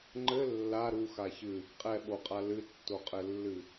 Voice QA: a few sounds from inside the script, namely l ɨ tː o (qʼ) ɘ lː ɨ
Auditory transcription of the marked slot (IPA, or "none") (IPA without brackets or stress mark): qʼ